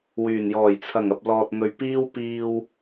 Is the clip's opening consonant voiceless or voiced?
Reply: voiced